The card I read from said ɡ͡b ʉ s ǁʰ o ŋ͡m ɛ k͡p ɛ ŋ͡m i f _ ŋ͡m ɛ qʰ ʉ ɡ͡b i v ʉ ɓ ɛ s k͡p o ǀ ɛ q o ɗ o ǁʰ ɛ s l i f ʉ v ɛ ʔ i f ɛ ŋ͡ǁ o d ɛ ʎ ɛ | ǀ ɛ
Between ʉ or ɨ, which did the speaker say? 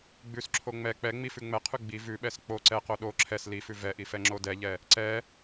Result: ʉ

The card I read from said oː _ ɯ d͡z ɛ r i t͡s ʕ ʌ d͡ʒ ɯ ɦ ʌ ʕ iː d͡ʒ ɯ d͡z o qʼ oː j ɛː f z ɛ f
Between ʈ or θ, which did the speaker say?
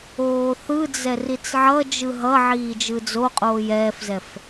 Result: θ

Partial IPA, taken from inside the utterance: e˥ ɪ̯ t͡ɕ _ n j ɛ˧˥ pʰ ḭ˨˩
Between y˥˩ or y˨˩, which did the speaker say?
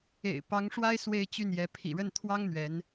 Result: y˥˩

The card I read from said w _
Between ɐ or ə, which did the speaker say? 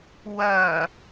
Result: ɐ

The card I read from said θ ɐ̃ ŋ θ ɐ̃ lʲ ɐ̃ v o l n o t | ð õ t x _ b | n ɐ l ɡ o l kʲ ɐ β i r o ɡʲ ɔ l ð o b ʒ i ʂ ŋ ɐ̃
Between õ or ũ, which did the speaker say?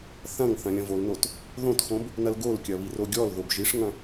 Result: õ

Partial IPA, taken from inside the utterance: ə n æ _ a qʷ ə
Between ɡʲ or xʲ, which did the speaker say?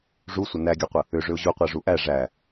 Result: ɡʲ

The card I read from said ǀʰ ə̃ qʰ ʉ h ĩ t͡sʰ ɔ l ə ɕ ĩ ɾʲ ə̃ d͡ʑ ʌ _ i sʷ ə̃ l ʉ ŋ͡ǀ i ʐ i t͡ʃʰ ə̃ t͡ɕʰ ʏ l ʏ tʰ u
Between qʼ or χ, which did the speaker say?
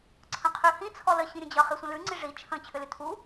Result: χ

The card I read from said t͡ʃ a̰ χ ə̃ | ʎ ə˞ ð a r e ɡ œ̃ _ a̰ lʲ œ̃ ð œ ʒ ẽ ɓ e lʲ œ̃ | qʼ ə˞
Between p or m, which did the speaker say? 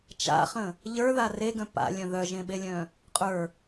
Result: p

